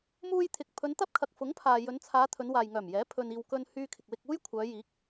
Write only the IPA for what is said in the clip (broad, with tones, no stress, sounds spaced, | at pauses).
m uː˧ j t̪ʰ ɪ˨ k̚ pʰ ɵ˨˧ n t̪ ɐ˥ p̚ kʰ ɐ˨ k̚ f ʊ˨˥ ŋ pʰ aː˨ j ɵ˨˧ n t͡sʰ aː˨˧ t̪ʰ ɵ˨˧ n w aː˨ j ŋ œː˨˩ m j ɛː˨˥ pʰ ɵ˧ n iː˧ w k ɵ˧ n h yː˧ kʰ ɪ˨ k̚ w ɪ˧ k̚ uː˥ j kʷʰ œː˨˧ j iː˨˥ k̚